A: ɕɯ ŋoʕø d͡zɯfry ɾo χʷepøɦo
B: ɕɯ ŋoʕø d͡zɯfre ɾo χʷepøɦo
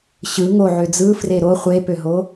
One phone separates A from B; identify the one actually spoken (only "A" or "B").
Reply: B